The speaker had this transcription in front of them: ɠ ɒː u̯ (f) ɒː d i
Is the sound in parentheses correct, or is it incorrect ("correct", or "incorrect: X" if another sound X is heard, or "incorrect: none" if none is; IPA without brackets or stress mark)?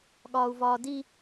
incorrect: v